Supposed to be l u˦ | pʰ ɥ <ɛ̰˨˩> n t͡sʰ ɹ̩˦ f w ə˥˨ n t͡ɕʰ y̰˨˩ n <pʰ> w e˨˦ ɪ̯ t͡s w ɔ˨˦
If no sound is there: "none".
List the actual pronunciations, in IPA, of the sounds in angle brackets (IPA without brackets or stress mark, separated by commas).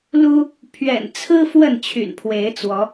ɛ̰˨˩, pʰ